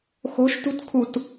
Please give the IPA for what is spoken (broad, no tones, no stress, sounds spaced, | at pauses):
x o̤ ʃ t ṳ t kʰ u t